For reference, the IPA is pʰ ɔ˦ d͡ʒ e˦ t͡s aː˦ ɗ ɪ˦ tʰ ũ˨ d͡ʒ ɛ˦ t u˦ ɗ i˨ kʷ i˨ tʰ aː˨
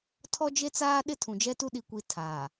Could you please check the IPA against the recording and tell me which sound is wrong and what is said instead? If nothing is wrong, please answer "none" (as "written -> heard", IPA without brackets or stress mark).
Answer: pʰ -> tʰ